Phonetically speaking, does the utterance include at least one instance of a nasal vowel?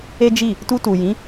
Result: yes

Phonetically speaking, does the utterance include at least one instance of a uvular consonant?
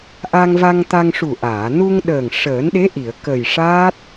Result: no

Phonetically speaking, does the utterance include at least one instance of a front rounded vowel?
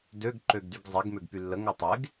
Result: yes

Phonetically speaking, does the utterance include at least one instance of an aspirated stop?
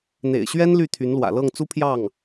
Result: yes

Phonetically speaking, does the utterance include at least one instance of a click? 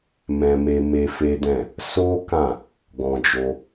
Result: no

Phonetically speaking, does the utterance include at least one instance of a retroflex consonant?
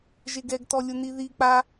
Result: no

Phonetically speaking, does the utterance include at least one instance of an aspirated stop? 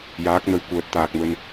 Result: no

